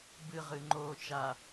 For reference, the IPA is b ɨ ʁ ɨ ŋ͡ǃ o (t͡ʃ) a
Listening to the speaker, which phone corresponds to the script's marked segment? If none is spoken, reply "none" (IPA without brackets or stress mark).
t͡ʃ